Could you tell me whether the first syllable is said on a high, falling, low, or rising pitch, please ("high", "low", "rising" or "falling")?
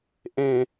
low